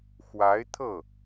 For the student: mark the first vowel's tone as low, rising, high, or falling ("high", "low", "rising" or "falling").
rising